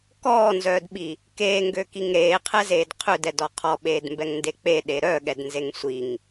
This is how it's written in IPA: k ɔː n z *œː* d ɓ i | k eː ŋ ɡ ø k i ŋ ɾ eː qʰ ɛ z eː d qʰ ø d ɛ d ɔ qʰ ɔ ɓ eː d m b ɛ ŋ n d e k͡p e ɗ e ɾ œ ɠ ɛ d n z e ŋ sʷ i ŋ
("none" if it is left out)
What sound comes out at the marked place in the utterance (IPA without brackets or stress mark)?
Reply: œː